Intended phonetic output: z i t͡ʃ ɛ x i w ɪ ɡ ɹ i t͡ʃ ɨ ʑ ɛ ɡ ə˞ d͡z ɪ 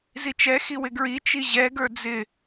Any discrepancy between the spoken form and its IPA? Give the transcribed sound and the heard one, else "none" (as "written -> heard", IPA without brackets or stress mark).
ɨ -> i